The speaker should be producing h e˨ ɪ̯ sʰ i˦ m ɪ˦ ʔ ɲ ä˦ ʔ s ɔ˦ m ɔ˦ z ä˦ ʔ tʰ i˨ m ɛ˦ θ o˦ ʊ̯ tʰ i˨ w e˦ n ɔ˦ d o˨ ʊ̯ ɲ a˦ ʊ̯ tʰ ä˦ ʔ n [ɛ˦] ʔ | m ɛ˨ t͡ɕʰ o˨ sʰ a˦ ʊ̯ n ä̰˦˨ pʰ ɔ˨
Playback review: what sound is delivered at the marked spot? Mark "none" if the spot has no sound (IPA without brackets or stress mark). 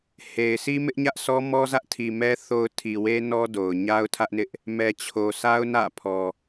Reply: ɪ˦